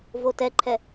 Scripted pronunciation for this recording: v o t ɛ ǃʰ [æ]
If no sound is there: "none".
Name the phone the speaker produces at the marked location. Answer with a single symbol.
ɛ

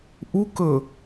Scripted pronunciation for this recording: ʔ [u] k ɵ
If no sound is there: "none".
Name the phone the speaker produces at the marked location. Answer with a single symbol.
u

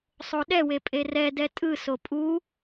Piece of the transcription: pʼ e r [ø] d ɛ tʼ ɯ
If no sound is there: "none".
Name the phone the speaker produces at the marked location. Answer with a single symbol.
ɛ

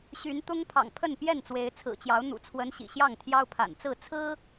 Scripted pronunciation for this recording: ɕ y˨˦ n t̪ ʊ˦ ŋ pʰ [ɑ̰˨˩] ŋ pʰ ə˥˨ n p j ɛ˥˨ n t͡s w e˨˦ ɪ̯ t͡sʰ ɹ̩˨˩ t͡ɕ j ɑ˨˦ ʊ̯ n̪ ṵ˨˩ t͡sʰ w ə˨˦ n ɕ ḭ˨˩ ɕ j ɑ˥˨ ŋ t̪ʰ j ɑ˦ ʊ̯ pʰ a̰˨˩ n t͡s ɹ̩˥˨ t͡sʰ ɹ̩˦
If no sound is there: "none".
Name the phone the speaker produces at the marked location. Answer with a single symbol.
ɑ̰˨˩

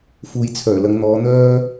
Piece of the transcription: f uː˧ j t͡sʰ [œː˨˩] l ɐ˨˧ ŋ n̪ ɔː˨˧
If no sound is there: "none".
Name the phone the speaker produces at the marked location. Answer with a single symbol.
œː˨˩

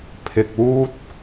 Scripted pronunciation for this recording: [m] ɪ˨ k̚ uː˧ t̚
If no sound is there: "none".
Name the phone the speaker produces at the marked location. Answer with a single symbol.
pʰ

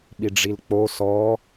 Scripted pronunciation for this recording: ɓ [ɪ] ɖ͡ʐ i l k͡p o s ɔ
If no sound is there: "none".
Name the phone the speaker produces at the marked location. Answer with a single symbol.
i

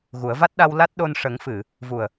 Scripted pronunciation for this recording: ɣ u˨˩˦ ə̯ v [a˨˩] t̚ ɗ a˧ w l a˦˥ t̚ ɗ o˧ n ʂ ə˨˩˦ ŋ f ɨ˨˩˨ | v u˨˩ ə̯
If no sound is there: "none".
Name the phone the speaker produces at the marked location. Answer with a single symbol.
a˦˥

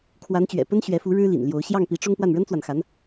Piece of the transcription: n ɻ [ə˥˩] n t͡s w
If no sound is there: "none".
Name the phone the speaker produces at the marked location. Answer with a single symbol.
ə˥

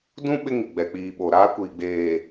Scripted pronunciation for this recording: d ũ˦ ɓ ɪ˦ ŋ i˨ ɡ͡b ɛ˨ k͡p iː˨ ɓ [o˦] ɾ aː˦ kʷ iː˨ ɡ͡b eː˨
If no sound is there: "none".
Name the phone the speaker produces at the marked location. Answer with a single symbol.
o˨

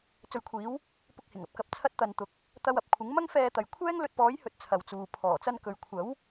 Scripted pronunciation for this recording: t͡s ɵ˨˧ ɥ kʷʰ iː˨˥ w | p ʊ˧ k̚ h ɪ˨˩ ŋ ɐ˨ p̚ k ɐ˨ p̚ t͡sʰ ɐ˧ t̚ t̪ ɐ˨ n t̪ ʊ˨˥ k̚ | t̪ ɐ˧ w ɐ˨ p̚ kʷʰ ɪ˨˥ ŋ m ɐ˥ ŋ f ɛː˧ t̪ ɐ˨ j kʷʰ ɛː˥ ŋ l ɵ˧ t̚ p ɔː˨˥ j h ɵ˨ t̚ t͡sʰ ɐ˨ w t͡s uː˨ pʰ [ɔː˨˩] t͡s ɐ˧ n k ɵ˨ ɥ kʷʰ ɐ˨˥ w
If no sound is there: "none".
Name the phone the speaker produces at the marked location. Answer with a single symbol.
ɔː˨˩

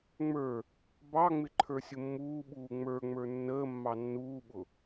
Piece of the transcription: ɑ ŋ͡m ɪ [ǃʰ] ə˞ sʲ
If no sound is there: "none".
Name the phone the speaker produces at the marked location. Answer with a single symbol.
ǃʰ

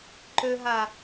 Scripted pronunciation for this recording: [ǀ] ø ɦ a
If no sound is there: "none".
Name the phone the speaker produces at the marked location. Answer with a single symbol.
ǃ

